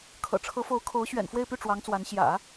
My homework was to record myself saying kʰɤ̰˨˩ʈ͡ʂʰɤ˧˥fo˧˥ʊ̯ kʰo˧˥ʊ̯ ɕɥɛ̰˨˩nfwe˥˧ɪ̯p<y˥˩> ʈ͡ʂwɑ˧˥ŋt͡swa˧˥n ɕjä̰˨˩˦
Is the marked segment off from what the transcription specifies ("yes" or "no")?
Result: no